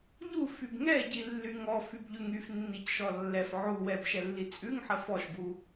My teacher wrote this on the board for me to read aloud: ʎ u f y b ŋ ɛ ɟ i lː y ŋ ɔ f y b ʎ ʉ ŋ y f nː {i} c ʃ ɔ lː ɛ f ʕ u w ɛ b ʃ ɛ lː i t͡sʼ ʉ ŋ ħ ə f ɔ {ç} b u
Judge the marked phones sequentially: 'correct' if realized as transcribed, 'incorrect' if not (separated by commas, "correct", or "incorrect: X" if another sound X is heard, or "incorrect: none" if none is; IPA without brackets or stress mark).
correct, incorrect: ʃ